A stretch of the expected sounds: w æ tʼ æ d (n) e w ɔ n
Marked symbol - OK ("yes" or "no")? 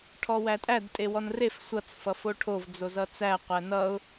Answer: no